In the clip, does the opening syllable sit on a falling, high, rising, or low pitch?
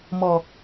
low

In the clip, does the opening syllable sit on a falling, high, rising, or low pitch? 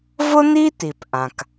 high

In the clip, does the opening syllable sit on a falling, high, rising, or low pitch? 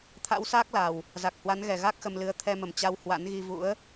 rising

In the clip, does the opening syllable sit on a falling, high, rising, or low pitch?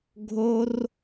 high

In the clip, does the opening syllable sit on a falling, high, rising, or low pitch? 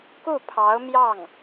falling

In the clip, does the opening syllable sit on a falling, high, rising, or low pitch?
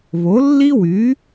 rising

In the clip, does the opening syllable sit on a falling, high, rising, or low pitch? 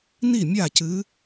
falling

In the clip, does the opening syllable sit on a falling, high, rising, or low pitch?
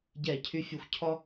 falling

